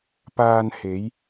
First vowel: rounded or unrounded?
unrounded